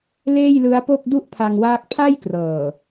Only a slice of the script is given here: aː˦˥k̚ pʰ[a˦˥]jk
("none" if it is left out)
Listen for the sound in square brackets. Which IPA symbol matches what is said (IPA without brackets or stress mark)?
a˥˩